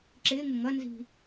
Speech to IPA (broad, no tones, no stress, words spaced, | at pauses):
ǁɪːŋʊ ŋʌnzi̤